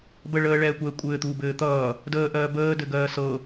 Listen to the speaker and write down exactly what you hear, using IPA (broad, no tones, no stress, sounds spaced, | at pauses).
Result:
b ə ɭ əː ɭ ɛː kʷ ɛː kʷʼ ɘː t̪ uː b ɘː t̪ ʌː | d əː ʔ ɜː b əː d ɘ ɡ ɜː s ɤ